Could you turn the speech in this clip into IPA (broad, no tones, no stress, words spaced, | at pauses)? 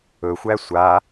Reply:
ɵxʷæ sʷa